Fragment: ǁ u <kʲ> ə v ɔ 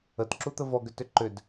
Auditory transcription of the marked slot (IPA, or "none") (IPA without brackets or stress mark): t̪